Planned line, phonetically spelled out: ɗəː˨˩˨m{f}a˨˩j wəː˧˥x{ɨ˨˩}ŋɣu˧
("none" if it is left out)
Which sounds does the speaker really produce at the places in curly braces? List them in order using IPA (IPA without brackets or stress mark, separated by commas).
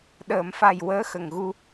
f, ə˨˩